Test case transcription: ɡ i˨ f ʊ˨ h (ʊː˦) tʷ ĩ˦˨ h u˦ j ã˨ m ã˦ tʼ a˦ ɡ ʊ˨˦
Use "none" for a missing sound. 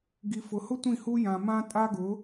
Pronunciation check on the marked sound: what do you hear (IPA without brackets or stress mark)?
ʊ˦